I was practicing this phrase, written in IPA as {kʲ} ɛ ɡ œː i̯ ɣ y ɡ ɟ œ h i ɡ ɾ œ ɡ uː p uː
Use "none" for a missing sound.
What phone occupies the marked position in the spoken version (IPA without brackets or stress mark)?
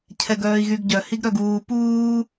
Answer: cʰ